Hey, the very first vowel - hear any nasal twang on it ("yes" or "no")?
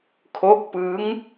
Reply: no